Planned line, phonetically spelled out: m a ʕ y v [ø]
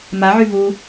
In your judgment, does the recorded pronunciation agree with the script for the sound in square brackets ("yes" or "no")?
no